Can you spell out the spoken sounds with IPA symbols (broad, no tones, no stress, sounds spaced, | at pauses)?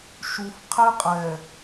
ʃ u f qʰ e qʼ ɛ